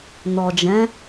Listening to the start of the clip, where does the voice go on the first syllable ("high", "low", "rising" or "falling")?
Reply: low